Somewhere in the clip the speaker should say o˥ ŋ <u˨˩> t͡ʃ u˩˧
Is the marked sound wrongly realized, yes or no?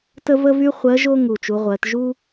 no